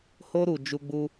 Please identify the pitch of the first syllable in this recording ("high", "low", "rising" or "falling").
high